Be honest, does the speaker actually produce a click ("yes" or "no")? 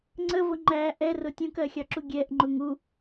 yes